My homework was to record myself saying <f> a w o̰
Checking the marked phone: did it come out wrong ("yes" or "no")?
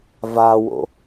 yes